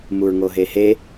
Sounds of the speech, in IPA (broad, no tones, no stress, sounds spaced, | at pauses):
m u ɹ ŋ o ɦ e h e